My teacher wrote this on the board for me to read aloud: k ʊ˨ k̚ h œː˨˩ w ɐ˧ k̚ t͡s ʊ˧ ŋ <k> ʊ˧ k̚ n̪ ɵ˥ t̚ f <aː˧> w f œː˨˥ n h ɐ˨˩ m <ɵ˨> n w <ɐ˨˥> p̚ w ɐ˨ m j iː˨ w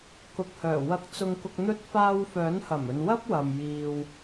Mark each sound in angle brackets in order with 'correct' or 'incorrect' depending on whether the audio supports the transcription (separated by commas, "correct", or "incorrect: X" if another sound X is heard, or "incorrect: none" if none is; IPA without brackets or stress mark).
correct, correct, correct, incorrect: ɐ˥